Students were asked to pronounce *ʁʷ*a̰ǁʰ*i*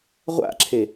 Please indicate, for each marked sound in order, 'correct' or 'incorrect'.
correct, incorrect

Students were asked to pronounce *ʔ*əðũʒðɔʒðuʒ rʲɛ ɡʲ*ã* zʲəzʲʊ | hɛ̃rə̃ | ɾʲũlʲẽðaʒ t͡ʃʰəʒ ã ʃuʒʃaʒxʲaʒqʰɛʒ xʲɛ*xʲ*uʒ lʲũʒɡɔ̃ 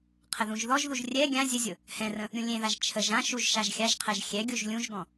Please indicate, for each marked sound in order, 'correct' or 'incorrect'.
incorrect, correct, incorrect

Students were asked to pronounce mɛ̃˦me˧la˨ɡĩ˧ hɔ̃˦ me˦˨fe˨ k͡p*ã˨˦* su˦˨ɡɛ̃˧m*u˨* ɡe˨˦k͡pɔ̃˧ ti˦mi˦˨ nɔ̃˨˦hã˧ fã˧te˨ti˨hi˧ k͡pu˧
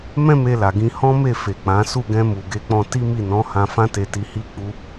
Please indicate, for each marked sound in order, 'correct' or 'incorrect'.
correct, correct

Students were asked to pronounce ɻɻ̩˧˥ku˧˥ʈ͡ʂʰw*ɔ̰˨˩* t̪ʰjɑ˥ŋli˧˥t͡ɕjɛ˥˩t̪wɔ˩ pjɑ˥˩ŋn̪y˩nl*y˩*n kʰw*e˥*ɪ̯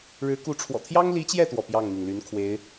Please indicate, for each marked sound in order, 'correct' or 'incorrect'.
correct, incorrect, incorrect

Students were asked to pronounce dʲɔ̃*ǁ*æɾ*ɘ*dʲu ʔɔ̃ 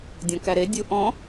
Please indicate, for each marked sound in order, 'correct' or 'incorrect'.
incorrect, incorrect

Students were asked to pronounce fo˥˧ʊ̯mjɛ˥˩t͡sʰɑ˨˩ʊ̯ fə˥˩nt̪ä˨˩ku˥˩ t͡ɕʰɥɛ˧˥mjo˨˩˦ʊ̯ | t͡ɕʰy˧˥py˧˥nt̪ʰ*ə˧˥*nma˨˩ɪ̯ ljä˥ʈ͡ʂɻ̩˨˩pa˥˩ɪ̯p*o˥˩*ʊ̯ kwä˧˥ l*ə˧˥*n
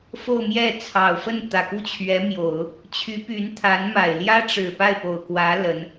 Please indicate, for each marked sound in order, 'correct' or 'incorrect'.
incorrect, incorrect, correct

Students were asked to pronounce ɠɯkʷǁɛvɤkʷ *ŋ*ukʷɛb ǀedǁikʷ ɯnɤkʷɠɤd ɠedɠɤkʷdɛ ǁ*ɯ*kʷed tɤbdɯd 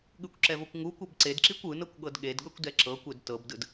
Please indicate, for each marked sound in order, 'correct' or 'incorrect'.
correct, incorrect

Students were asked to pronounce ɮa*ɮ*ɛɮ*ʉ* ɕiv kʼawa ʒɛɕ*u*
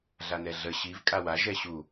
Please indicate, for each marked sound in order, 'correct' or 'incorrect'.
incorrect, incorrect, correct

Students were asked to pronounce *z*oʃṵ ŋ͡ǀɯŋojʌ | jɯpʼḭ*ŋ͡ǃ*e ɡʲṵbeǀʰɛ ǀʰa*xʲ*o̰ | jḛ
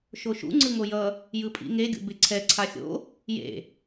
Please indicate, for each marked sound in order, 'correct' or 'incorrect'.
incorrect, incorrect, correct

